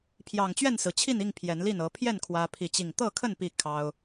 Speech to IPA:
pʰ j ɑ˨˩ ŋ t͡ɕ ɥ ɛ˥˨ n s ɹ̩˩ t͡ɕʰ i˥˨ n i˥˨ ŋ pʰ j ɛ˨˦ n l i˥˨ n ɤ˨˦ pʰ j ɛ˥˨ n kʰ w ä˦ pʰ i˥˨ t͡ɕ i˥˨ ŋ t̪ ɤ˥˨ kʰ ə˥˨ n p i˥˨ kʰ ɑ˦ ʊ̯

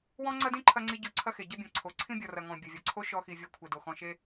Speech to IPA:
w ɔ̃˦ ŋ͡ǀ ɐ˦ d ĩ˦ ǃʰ ɐ˧ ŋ͡ǀ i˧ ɟ o˧ ǀʰ ɐ˦ x e˨ ɟ ɐ˦ bʲ ɔ̃˨ ǀʰ o˨ ǀʰ ĩ˦ bʲ ɔ˨ r ɐ˨ ŋ ɔ̃˨ bʲ ɐ˨ vʲ ɔ˨ ǀʰ o˦ ʃ ɔ˧ x i˨ vʲ ɐ˧ kʷʰ e˨ d o˨ x ɔ̃˧ ʃ e˦

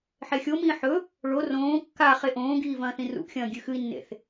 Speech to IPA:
ħ e xʲ o m ĩː ħ ɵ | ɭ o r õː kː a χ e ʔ õː ɡ iː v ɐ̃ː θ ĩ r ṵ ʔ xʲ ɐ̃ː ɡʲ ʉ x ɨ i̯ nː ḛ θ

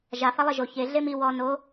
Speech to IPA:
ʒ a f a lˠ e ʒ o ç e ɮ e m i w ɔ n o

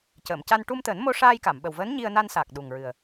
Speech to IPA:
c əː˨˩˨ m c a˧ n ʈ u˧ m t̪ əː˨˩˦ n m o˧ ʂ aː˧ j k a˨˩˨ m ɓ ə˨˩ w v əː˧˥ n ɲ i˧ ə̯ n a˧ n s a˨˩ k̚ ɗ u˨˩ ŋ ɹ ɨ˨˩ ə̯

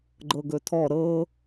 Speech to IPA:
ɡ͡ǃ ɤ ɡ ɵ tʰ ɔ ɾ ɤ

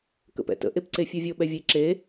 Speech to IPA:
k ə̰ p ɛ̰ t ə̰ ʔ e p ǀ e fʲ ə˞ vʲ o ɓ ɛ vʲ e ǁ e

